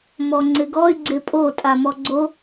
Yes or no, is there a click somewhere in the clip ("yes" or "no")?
yes